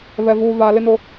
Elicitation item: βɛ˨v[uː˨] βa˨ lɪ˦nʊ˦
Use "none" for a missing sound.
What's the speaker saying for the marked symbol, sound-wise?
uː˨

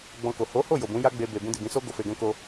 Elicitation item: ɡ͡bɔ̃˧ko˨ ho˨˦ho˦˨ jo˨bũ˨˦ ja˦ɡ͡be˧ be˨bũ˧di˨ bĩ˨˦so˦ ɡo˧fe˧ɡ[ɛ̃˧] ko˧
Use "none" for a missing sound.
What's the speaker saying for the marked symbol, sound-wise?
ɛ̃˦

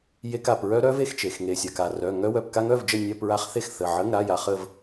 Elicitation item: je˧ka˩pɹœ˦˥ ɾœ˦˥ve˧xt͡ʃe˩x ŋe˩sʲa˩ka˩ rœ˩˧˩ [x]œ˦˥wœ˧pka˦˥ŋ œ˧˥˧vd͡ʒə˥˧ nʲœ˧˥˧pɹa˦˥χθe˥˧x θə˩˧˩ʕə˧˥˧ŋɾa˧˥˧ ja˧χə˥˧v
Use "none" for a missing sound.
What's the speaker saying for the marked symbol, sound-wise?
ŋ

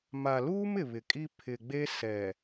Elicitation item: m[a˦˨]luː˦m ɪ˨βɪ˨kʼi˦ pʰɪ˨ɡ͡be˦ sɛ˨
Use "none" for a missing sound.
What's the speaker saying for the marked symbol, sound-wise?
a˨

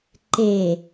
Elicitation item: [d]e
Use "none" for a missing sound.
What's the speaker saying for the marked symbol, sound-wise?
ǃ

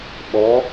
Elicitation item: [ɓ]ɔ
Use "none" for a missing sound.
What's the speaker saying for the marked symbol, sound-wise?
ɓ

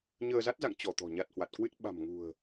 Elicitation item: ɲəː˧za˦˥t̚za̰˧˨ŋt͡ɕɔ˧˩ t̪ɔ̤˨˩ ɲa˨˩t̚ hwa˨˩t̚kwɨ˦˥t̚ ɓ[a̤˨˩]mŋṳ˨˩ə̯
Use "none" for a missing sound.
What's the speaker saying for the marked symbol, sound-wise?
a̤˨˩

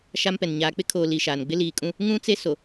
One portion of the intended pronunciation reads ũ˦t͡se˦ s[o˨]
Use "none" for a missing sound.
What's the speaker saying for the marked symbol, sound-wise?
o˨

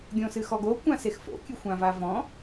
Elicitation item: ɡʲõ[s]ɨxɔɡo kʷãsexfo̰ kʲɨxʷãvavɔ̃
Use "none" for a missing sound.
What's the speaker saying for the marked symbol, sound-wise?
s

